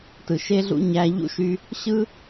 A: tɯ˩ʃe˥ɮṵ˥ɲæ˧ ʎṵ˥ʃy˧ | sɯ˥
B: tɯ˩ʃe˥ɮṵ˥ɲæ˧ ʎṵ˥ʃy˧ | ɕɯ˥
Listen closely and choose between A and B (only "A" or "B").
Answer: B